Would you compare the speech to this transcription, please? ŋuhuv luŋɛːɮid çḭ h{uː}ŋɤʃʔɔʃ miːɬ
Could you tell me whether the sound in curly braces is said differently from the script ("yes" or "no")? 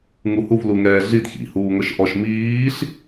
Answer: no